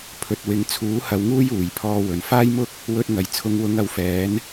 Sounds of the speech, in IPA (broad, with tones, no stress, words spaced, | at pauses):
pʰɵ˨t̚wɪ˨˧ŋ t͡sʰuː˨˥hɐ˨˧wŋuː˥j uː˨˩jpʰɔː˧wɵ˨˩n faː˥jmʊ˥k̚ | wɵ˧t̚ŋɐ˨˩j t͡sʰʊ˨˧ŋwʊ˨˧ŋɐ˨w fɛː˨˥n